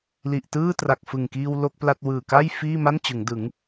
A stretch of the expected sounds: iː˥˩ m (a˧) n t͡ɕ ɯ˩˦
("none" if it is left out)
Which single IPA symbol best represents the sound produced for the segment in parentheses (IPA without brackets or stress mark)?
a˥˩